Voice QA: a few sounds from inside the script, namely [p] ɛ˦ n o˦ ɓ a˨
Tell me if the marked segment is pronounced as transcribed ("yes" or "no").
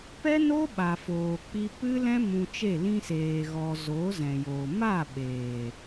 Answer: yes